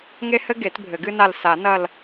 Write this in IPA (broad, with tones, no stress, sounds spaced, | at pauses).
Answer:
ŋ e˥ h ɘ˥ ɡ e˨˩˦ t bʱ ɘ˨˩˦ ɡ ɨ˥ n a˦˨ l s a˨˩˦ n ɐ˦˨ l